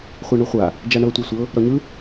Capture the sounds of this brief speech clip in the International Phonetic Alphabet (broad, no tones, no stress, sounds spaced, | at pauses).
χʷ a ɳ u χʷ a | d͡ʒ a ɳ ɤ tʷ ɤ sʷ ɤ | ɾ ɔ ɲ ɯ